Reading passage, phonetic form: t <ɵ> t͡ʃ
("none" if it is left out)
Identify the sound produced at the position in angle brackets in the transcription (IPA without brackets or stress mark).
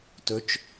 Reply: ɵ